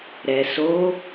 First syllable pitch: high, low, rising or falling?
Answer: low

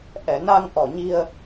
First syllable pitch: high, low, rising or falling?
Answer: low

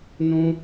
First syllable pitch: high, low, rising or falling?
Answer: high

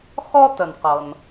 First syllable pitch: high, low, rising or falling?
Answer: high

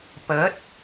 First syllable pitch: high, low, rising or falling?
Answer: rising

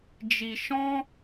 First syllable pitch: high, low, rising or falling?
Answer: low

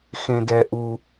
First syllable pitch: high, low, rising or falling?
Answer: low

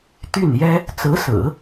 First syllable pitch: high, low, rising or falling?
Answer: falling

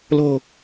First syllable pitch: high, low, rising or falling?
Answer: low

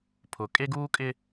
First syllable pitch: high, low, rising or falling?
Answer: low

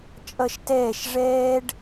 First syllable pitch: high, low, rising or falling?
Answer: falling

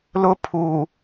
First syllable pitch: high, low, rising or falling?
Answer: high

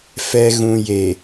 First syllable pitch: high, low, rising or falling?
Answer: low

